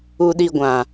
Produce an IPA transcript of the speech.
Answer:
u˧ɗi˧ɡʷã˨

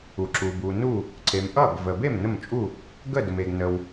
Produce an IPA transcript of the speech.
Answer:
u˩ ǁu˩bu˩nu˥˩ | ǀe˩mʔʌ˥˩ɡ və˩be˥˩m nə˥˩mt͡ʃʼu˥˩ | ɡə˥˩də˩me˩ɡnə˩w

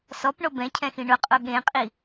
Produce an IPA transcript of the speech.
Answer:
sɔpɳo bɛ̃cʰɛ̃xĩ ɳʊ qʼoɠẽqʼi

